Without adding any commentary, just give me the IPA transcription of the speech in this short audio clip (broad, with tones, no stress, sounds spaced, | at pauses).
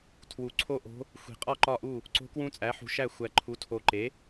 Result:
tʰ w u˨ ǀʰ o˥˧ ʔ o̤˧˥ | xʷ i̤˨˩˦ qʼ ɒ˥˧ ǃ ɒ˥˩ ʔ u˥˩ | ǀ o̤˧˥ k w ũ˧˥ t͡sʼ æ˩˥ ħ ṳ˨ ʃ æ˥˩ xʷ æ˨ ǃʰ u˩˥ tʰ o˨ ǃ e˩˥